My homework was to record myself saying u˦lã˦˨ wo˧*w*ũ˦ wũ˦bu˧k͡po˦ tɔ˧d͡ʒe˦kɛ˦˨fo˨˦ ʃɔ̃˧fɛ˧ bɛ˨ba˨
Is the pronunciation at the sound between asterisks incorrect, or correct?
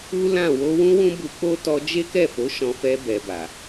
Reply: correct